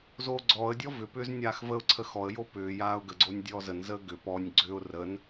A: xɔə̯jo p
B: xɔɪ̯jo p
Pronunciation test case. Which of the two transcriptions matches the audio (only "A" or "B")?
A